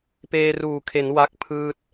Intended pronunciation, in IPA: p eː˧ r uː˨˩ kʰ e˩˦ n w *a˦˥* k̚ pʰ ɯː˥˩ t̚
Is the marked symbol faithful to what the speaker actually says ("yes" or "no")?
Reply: yes